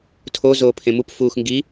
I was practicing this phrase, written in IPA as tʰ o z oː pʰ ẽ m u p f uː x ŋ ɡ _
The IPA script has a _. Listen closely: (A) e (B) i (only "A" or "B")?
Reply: B